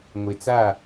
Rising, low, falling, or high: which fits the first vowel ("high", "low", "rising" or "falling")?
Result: low